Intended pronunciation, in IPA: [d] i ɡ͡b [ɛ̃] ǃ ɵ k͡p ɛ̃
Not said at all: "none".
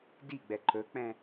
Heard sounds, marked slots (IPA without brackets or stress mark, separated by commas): d, ɛ